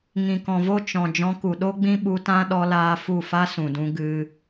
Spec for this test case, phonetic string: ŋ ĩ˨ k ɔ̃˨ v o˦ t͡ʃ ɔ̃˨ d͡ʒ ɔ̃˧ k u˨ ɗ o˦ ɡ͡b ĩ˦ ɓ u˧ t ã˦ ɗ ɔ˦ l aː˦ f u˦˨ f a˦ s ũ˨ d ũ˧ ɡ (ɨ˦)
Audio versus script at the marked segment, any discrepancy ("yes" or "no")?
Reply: no